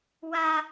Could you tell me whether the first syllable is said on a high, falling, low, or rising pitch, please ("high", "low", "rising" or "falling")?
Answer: high